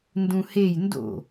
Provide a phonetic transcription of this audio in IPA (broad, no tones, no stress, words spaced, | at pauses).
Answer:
ndũhej ndo̰